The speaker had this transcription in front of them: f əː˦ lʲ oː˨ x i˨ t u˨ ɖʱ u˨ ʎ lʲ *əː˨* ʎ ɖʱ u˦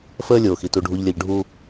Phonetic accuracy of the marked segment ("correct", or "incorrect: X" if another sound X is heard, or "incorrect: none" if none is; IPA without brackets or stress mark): incorrect: ə˨